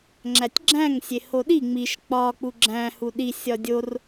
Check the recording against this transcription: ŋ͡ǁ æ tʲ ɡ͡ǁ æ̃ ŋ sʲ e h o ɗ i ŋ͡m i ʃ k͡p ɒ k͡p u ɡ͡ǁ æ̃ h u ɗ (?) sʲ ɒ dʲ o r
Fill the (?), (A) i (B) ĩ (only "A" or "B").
A